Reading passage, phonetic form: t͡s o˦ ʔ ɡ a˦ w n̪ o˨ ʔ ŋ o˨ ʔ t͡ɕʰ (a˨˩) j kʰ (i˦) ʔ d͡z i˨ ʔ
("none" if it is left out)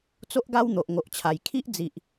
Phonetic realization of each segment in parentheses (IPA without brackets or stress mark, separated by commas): a˨˩, i˦